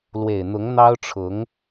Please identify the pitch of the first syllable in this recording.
low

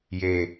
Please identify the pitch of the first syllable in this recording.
low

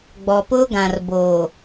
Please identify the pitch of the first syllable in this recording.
low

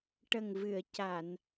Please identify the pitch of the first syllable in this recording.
low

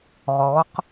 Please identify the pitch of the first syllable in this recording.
rising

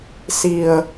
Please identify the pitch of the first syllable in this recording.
low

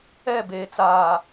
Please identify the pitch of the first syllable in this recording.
falling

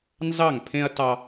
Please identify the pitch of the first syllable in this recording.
falling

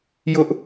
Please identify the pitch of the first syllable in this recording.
high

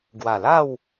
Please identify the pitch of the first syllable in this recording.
low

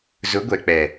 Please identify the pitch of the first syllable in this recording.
rising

